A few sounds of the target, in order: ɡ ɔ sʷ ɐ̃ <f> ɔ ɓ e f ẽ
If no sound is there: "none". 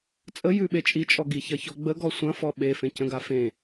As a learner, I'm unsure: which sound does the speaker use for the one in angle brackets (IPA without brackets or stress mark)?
f